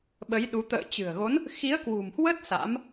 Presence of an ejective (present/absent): absent